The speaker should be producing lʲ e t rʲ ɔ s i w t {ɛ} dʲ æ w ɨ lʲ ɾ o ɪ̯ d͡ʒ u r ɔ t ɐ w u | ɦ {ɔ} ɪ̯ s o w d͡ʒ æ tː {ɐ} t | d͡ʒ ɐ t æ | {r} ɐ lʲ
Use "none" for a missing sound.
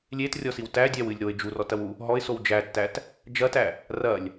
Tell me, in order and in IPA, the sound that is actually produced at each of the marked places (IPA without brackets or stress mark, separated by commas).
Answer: æ, ɔ, æ, r